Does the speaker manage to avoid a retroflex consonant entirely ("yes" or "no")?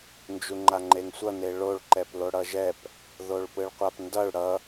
no